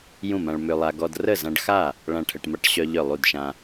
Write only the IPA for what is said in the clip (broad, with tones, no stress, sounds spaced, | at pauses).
j ũ˥˩ m ã˧ ɭ m ø˧ lˠ a˧ ɡ ɔ˧ d r ə˥˩ z ã˧ ɖ x a˥˩ | ɭ ã˥˩ ʈʰ ə˧ ʈ m a˧ ʈ ɕ œ˧ ʎ œ˥˩ lˠ u˥˩ d ʃ ã˧